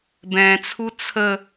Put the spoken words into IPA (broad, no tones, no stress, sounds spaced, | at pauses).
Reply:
b ɛ̃ t͡sʰ u t͡sʰ ə